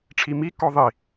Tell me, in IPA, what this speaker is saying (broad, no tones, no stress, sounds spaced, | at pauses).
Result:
ʈ͡ʂʰ i m i k ɔ ðˤ i